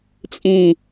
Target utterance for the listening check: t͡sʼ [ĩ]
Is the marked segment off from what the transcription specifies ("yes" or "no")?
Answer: no